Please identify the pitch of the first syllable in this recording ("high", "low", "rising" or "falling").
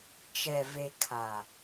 low